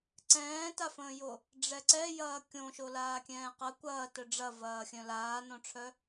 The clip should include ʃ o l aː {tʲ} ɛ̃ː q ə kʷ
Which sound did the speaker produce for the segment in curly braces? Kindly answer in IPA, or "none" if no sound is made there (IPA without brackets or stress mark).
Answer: kʲ